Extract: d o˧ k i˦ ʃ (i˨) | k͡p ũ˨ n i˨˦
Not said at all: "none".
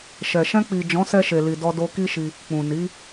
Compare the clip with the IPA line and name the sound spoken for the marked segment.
i˧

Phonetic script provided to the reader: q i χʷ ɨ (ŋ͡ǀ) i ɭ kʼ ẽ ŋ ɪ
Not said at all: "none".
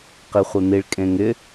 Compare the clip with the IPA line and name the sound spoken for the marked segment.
n̪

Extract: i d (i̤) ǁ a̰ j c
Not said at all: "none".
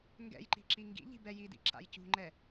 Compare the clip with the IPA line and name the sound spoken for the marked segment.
ḭ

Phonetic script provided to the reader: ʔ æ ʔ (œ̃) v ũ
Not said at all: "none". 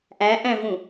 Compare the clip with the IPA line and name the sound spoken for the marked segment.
æ̃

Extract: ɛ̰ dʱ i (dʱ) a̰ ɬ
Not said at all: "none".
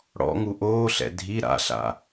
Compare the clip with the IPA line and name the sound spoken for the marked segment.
ɾ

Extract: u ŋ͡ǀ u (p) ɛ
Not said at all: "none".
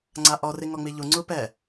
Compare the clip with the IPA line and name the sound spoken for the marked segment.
p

